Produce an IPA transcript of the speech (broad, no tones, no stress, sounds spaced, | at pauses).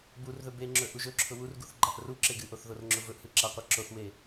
b u r ð ɵ b e ŋ͡ǁ ɵ ʔ u ʒ ɵ ǁʰ ʊ w u r ɡ u θ ɡ͡ǃ a ʔ r u ǁ e ɡ ɨ ʔ o θ ð o r ŋ͡ǁ ʊ v ɵ ʔ h ɯ ǁ a qʷ a ǁ o θ w e